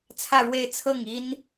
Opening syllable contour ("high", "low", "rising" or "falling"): falling